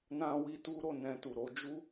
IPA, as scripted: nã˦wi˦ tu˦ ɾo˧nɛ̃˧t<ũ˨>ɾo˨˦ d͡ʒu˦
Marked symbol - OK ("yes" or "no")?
no